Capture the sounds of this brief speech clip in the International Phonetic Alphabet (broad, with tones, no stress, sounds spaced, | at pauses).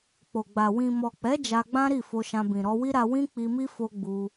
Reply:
k͡p o˨ ɡ͡b a˨ w ĩ˨ m ɔ˨ k͡p ɛ˨˦ d͡ʒ a˧ ɡ͡b ã˦ ɾ i˦˨ f o˧ ʃ ã˧ b ĩ˨ ɾ ɔ˧ w i˦ ɾ a˧ w ĩ˦ k͡p i˧ m i˦ f o˦ ɡ͡b u˧